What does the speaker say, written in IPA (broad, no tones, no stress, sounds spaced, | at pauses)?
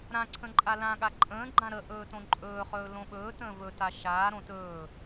ɾ ã ǀʰ ə̃ ǃʼ a l ã ɠ a ǃʼ ə̃ː ɡ͡ǃ ã ɾ ə ʔ ɵː t õ ǃʼ ɵː χ ɵː l õ ɓ ɵː t ə̃ː v ɵ t a ʃ aː ɾ õ t ɵː